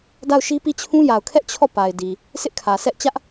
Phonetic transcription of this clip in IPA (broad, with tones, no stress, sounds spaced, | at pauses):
d a˦˨ ʊ̯ ʃ i˦ p i˦˨ t͡ɕʰ ũ˦ j a˨ ʊ̯ kʰ ɛ˦ ʔ t͡ɕʰ ɔ˦˨ p a˨ ɪ̯ d i˨ | sʰ ɪ˦ ʔ kʰ ä˨ s ɛ˦ ʔ t͡ɕ ä˦ ʔ